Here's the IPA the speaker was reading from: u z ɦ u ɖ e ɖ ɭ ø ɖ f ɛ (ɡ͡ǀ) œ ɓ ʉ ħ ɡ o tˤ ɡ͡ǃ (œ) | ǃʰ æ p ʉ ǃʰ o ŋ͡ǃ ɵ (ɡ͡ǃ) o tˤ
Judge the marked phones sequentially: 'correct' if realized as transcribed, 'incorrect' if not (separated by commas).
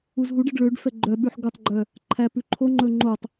incorrect, correct, incorrect